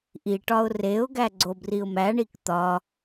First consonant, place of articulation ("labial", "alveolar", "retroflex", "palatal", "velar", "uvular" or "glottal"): glottal